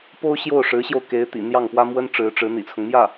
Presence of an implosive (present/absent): absent